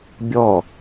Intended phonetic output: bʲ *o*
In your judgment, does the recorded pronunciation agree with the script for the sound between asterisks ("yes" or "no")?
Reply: no